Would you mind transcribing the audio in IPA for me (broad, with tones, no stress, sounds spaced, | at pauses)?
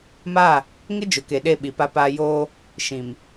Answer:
m a˦˨ | ŋ ɪ˦ d͡ʒ ʊ˨ k e˨ ɗ e˦˨ ɓ i˨ p a˦ p aː˦ j oː˦ | ʃ ĩ˨ m